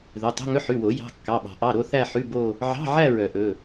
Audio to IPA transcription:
ðœ˩˧˩tˤo̤˧˥˧ŋɵ˧˥˧ ħʉ˩˧˩wo˨˩˦jɑ̤˩˧˩ kːɑ˩˧˩ɓɑ̤˨˩˦ ʔɑ˩˧˩ɾo˥˧ θæ˥˧ħʉ˧˥˧ bo˥˧ | ʕɑ̤˧˥˧ʕæ˥˧ ɹœ˨˩˦ʔɵ˩˧˩

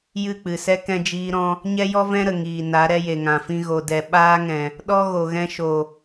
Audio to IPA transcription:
jɨ˦˨k͡pɨ˨sɛ˦ kɛ̃˦d͡ʒiː˦ɾɔ̃˦ | ɲɛ˦jɔ˦vɛ̃˦ɾə˨ ŋiː˨na˨˦ ɾɛ˧je˨ŋã˨fĩ˧ ɣo˨dɛ˨ ɓaː˦ŋɛ̃˨ | ɗɔ˦ɣo˨ɣɛ̃˧ʃo˨

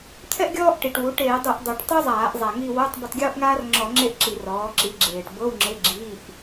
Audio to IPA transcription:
t̪ʰɛ˥ʔ ɡʲɔː˥ʔ ʈi˨˩ʈwu˩˥ʈeː˧˩˧dˤɯ˧˩˧ʔ dˤu˨˩ʈtˤo˥zˤaː˧˩˧ʔ zˤa˨˩ŋi˦˨wo˧˥˧tˤ bo˦˨tˤɡʲoː˥ʔŋaː˥r ŋ͡ǁɔ˧˩˧ ŋ͡ǁe˥ʔǁi˧˩˧rɔː˩˥ ǁi˩˥ɡ͡ǁeː˨˩ʈbɤ˧˥˧w ŋ͡ǁe˧˥˧ɡ͡ǁiː˧˥˧ʔ

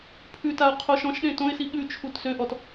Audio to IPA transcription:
pʰʉtaʊ̯ qʰoʃɔ̃ʃɗẽ tõɪ̯si ɠʉt͡ʃʰut søʔɔt

